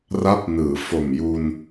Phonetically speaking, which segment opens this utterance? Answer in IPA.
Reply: r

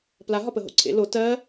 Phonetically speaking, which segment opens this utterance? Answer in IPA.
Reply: p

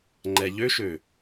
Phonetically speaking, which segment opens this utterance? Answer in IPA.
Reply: ŋ͡ǃ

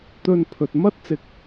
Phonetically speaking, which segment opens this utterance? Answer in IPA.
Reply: t̪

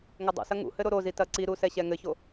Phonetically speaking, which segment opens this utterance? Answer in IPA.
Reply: ŋ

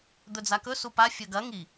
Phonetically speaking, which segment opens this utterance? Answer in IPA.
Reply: d̪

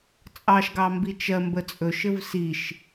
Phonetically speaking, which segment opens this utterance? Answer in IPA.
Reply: t͡sʼ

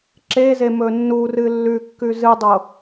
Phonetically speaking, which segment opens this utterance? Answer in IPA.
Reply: ǁ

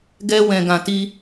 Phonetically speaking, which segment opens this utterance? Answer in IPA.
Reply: ɡ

